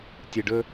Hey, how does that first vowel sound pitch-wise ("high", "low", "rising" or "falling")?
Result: low